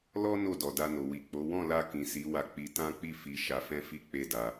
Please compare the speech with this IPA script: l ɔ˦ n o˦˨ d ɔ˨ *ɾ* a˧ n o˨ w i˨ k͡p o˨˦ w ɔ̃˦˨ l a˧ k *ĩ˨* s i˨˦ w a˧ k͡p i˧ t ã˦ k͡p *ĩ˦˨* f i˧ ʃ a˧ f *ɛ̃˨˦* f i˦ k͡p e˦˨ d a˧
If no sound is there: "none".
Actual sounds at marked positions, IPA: d, ĩ˨, i˦˨, ɛ̃˦

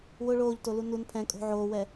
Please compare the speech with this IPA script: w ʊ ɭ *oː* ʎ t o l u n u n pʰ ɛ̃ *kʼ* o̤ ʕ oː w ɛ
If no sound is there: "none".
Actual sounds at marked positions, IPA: oː, kʼ

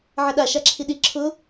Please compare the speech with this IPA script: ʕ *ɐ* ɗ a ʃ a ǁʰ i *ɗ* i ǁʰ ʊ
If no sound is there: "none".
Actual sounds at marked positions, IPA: ɐ, ɗ

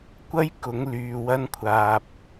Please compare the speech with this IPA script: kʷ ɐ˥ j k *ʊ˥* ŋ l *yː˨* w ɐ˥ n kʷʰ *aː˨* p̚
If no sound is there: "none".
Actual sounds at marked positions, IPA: ʊ˨˥, yː˨, aː˨

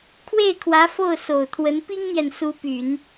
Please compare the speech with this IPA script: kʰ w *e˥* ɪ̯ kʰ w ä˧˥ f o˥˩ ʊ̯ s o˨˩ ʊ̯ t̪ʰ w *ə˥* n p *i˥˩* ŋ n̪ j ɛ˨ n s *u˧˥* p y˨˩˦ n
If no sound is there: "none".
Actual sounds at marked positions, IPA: e˥˩, ə˧˥, i˥, u˧˥

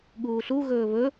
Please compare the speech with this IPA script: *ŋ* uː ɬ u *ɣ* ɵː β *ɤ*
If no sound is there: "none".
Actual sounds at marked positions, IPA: ɠ, ɣ, ɵ

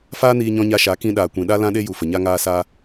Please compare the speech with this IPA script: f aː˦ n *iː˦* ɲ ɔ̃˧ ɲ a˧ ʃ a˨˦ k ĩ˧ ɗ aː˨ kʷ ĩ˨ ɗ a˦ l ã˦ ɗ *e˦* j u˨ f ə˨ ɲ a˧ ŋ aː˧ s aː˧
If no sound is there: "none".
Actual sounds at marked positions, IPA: iː˧, e˦

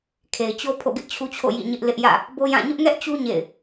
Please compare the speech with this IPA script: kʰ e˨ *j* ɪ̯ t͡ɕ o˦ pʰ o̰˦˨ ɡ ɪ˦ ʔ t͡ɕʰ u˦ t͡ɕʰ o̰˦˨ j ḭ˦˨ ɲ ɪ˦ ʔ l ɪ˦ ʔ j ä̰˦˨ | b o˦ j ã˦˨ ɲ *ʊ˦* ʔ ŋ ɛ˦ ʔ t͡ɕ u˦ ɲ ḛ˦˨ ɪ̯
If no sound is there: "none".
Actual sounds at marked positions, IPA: none, ʊ˦

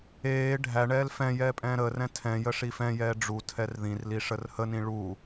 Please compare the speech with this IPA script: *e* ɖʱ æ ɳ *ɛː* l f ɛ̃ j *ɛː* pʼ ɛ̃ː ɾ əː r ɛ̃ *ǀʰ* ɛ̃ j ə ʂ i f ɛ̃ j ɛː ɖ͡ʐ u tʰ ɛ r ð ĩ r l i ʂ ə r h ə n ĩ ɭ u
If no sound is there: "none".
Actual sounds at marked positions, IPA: eː, ɛː, ɛː, tʰ

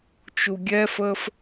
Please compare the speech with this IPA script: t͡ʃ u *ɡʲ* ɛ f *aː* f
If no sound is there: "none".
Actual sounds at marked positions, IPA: ɡʲ, əː

